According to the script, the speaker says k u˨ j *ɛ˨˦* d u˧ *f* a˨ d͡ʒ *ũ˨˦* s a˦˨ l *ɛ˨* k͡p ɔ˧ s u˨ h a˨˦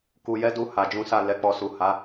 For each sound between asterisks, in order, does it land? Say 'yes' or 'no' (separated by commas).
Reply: yes, no, yes, no